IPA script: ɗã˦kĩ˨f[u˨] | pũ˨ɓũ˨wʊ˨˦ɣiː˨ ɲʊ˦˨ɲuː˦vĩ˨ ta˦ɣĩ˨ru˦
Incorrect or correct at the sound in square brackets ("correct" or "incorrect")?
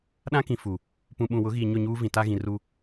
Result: correct